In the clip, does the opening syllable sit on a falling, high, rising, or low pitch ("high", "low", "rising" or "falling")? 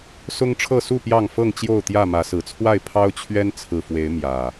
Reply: high